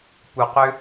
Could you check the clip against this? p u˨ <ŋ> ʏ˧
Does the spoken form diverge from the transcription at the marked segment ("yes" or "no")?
yes